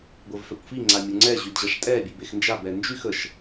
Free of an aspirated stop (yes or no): yes